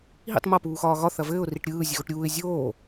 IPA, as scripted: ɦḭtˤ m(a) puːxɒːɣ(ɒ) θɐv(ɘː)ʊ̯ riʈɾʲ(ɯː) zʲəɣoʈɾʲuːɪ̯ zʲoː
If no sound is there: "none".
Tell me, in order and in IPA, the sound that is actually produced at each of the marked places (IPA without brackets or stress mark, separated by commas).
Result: ɐ, ɒ, ɘː, ɯː